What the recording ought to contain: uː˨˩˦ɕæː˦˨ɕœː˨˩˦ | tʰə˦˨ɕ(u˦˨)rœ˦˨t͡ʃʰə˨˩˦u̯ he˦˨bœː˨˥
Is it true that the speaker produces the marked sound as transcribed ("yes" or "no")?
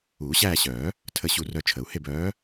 yes